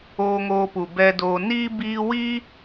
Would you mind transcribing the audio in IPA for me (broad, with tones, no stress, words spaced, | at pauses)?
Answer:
oː˧ŋoː˧pu˨ bɛ˧doː˧ niː˦ biː˧wi˦